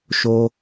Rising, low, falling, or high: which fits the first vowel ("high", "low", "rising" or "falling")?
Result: low